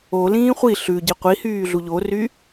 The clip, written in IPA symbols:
o l ĩː χʷ i ɬ ʉ ɟ i qʷ i h yː ɮ u ʎ o r y

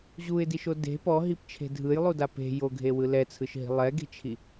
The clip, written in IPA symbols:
ʑ u ɪ̯ d i ʃ o d e̤ p ɔ ɦ i p t͡ʃʰ e̤ dʱ ɯ j lˠ u d a p e̤ j o ɡʱ e w ɯ l ɛ t͡sʰ ɯ ʃ ɦ i̤ lˠ ɛ ɡ e̤ t͡ʃʰ i

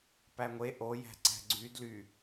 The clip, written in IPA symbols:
p æ ŋʷ e ʔ o j æ̤ ǀ æ̤ ɡ͡ǀ y d l y

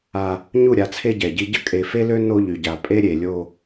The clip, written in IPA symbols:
a˦ | ɲ u˦˨ ɾʲ a˨ t͡sʰ e˦ ɟ ɛ˨ ɟ i˦ ɟ ə˦ kʼ e˨ f e˦ l ø˦ n o˦ ʎ y˨ ɟ a˨ pʼ e˦ ɾʲ e˨ lʲ o˦

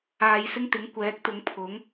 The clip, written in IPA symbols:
aː˧ j s ɪ˥ ŋ t̪ ɪ˨˥ ŋ kʷ ɛː˨˥ k̚ t̪ ʊ˨˥ ŋ pʰ ʊ˨˥ ŋ

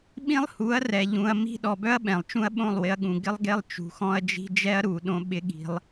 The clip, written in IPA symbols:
ɓ ĩ˦ lˠ h u˨˦ ɐ̯ r ɛ˨ ʎ ũ˨ ɐ̯ m i̤˧ ɗ ɔ˨ b œ˦ ɐ̯ ɓ ɛ̃˨ lˠ t͡ʃ ũ˦ ɐ̯ ɓ õ˦˨ lˠ w ɪ˧ ɐ̯ ɠ ũ˨ ɡ ɪ˦ lˠ ɡ e˦ lˠ t͡ʃ ṳ˨ x ɔ̃˧ ɐ̯ d͡ʒ i̤˧ d͡ʒ ɛ˦ ɐ̯ ɾ u˨ ɗ õ˦ ɓ ɪ˦ ɠ i̤˧ lˠ

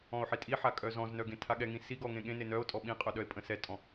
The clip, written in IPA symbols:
ɔ̃ o̯ ħ i tʼ i ħ a kʼ œ z ɔ̃ z n œ ɡ ẽ tʰ a ɠ ɛ ŋ ĩ s i ɡ ɔ ŋ ẽ ɠ ẽ n e n œ o̯ tʼ ɔ ɓ ĩ qʼ œ ɗ œ e̯ pʼ ə̃ s ɛ tʼ ɔ̃

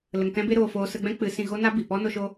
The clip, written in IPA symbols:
l ə˨ ŋ t ɛ̃˧ b e˧ ɾ oː˨ f oː˧ s ə˧ ɡ͡b ɛ̃˦ k͡p ɨ˨˦ s ĩ˧ ɣ o˦ n a˦ b i˨ p ɔ˧ n o˧ ʃ oː˧

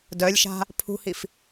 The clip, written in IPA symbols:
d œ lʲ ʃ a̤ | pʰ ṳ h i f

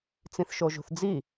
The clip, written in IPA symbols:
t͡s ĩ θ ʃ o ʒ ṳ θ d͡z i

